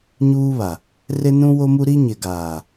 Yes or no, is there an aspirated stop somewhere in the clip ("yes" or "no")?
no